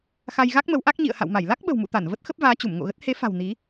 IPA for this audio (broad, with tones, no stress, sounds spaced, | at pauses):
x a˧ j ɣ a˦˥ k̚ m ə˨˦ w ʔ a˦˥ k̚ ɲ ḭ˧˨ ə̯ h a̰˧˨ w m a˧˩ j l a˦˥ k̚ ɓ ə̤˨˩ w m ṵ˧˨ t̪ a˧˩ n v ə˦˥ t̚ x ə˦˥ p̚ v aː˨˦ t͡ɕ u˧˩ m ŋ o̰˧˨ ɣ ə˦˥ t̚ h e˨˦ f a̤˨˩ w n i˨˦